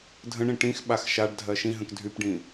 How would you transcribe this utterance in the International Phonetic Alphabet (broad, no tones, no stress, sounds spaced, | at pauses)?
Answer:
dʱ ə̃ ɳ ĩ ʈ ĩ x ɓ a x ʃ a ɖ dʱ ɜ ʃ ĩ ɦ ə̃ k dʱ y p ɖ ĩ